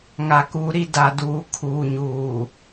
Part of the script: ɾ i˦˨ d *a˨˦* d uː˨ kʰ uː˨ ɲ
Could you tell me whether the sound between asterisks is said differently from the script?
yes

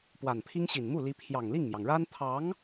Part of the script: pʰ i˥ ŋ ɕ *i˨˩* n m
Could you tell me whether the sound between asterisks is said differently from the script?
no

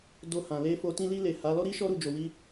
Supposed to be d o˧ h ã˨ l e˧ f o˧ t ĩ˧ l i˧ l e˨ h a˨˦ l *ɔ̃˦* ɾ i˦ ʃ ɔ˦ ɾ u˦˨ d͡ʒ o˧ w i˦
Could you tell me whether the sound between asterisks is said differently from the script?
yes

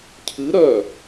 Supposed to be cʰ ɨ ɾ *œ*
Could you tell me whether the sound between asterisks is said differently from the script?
no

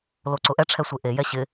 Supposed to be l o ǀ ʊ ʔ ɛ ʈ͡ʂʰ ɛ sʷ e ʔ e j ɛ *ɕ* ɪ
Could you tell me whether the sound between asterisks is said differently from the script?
no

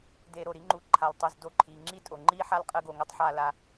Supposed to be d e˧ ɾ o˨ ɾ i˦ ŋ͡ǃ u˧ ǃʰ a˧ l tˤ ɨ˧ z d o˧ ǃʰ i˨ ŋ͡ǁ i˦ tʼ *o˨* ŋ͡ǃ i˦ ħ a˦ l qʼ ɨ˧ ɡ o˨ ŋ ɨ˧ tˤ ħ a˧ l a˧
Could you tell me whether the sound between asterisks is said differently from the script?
no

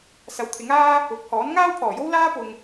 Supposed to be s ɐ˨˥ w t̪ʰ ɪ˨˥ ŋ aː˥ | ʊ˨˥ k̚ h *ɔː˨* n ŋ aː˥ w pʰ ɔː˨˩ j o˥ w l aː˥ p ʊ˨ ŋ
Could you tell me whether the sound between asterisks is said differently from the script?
yes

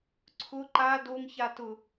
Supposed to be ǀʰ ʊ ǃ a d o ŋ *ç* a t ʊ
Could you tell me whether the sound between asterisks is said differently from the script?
no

